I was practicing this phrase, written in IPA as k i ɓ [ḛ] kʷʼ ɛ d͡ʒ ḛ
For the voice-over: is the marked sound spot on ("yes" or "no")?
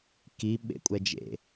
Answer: yes